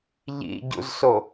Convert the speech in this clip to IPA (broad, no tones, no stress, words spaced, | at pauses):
ʎḭɟṵzso